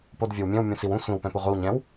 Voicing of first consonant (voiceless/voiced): voiceless